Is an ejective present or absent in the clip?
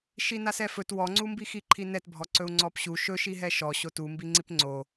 absent